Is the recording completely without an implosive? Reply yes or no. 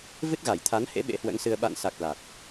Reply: no